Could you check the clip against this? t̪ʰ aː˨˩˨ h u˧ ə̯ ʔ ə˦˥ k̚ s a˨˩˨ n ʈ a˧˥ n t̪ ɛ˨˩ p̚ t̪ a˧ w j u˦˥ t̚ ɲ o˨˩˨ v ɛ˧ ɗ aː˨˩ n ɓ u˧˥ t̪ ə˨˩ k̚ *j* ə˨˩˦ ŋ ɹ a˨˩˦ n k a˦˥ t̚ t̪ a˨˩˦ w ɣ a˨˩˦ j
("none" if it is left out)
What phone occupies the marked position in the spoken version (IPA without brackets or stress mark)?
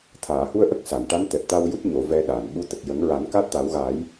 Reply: j